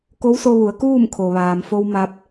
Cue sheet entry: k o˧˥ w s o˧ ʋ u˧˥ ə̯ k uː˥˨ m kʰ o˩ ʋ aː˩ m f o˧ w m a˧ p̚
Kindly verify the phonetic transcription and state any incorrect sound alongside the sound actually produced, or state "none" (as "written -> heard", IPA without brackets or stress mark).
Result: u˧˥ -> u˩˧